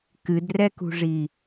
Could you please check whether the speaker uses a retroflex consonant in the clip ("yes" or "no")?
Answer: yes